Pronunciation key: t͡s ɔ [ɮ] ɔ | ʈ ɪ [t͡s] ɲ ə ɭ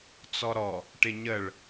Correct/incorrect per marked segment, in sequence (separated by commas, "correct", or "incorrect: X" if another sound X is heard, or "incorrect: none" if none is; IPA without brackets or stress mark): incorrect: ɾ, incorrect: none